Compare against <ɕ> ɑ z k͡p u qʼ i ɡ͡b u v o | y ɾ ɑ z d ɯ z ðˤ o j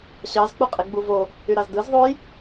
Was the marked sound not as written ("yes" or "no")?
no